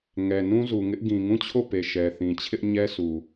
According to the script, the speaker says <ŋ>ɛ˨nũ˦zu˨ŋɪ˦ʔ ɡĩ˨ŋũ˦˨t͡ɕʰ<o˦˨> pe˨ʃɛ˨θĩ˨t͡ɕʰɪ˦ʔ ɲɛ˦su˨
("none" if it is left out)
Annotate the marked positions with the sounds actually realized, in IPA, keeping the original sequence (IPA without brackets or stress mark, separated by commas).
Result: ŋ, o˦˨